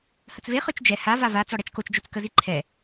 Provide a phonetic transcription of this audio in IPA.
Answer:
h ə t͡s v e χ ø t͡ʃ d͡ʒ ɛ h a v a v a t͡s ɔ ɽ ɛ t͡ʃ k o t͡ʃ d͡ʒ o t͡s k ə z i ǃʰ ɛ

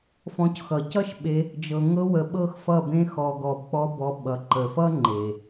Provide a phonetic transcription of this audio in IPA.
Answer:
f ɔ̃˧ c x ʌ˨ c ʌ˦ ʃ ɓ e˧ | d͡ʒ ɤ˨ ŋ ɤ˦ w ə˧ ɓ ɤ˦ x f ʌ˦˨ b ẽ˦ x ɔ˧ ɡ ɔ˧ b k͡p ɔ˦ b ɔ˧ ɓ ʌ˨ ǃ ə˨ f ʌ˦ ŋ͡ǃ e˨

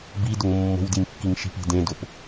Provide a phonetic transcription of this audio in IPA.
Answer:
b i d ʊ ŋ mː o̤ w d i ŋ kː i ŋ ʃ i̤ p i̤ d ẽ d o p

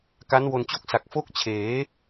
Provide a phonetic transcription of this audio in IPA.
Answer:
k a˦˥ n w o˧ n t͡ɕ o˥˩ k̚ s a˨˩ k̚ f o˥˩ k̚ t͡ɕʰ eː˩˦

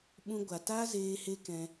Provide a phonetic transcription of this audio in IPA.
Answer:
ɓ ũ˧ ɡʷ a˨ t aː˦ z eː˧ h e˦ k ɛ̃˧

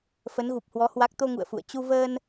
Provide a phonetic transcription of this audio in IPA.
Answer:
f ə˨˦ n ɣ u˨˩ p̚ h w ɔ˨˦ h w a˦˥ k̚ t̪ o˧ ŋ ṵ˧˨ ə̯ f ṵ˧˨ ə̯ t͡ɕ u˧ v əː˧ n

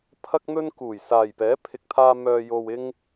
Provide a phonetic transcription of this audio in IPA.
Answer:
pʰ ɐ˥ k̚ n̪ ɵ˥ n k uː˨˩ j s aː˨˩ j p ɛː˨˥ pʰ ɪ˨ k̚ t̪ʰ aː˧ m œː˨ j o˨ w ɪ˧ ŋ

